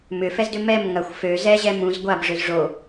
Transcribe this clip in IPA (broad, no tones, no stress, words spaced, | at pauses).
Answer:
mʏfɛzdʏ mɛm ŋɐxʷ fø zɛʑɛ mũz ɡʷab ʐøzʐo